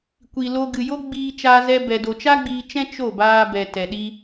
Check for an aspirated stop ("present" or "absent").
absent